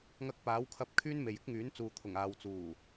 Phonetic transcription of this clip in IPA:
ŋ ɐ˧ k̚ p aː˨˥ w kʰ ɐ˧ p̚ kʰ yː˥ n m e˨ j ɪ˥ k̚ ŋ yː˨˥ n t͡s uː˨ t̪ʰ ʊ˨˩ ŋ aː˨ w t͡s uː˨˩

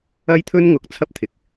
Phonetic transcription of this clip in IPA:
ɐ˥ j t̪ʰ ɵ˥ n ŋ ʊ˨ k̚ t͡sʰ ɐ˥ p̚ t̪ʰ ɪ˨ k̚

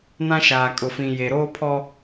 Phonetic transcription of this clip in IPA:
n ã˦ ʃ aː˨ kʼ ʊ˨ f ĩ˨ j e˨ ɾ oː˦ pʰ ɔ˦

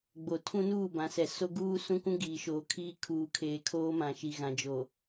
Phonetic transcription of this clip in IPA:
ɡ͡b o˨ tʰ ũ˦ n uː˦˨ b ã˨˦ s ɛ˨ s o˦ ɡ uː˦ s ũ˦ kʷ ũ˦ ɡ iː˨ ʃ oː˨ kʰ iː˦ kʰ uː˨ kʰ eː˨ kʰ oː˦ m ã˨ ʃ i˨ ɣ ã˨ d͡ʒ o˨

